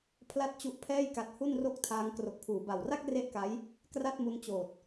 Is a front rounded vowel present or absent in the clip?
absent